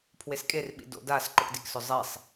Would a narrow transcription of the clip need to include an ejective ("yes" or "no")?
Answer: yes